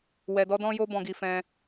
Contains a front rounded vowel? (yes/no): no